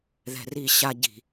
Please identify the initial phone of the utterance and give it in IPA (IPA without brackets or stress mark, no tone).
ð